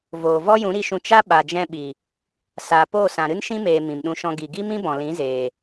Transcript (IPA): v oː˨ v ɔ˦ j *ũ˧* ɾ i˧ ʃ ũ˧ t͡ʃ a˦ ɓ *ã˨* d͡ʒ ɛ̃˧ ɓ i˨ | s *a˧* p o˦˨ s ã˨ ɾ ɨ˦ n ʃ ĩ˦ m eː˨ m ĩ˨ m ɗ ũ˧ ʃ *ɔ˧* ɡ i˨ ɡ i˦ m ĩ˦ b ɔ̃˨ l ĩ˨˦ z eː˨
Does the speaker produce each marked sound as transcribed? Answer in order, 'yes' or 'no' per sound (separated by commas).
no, no, no, no